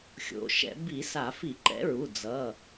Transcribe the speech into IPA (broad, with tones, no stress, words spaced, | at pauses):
xʲo̰˩˧˩ʃɛ̰˧˩˧ bi˧˩˧sa˧˩˧fi˧˩˧ ǃɛ̰˨˥ɹu˩˧˩ d͡zʌ˩˧˩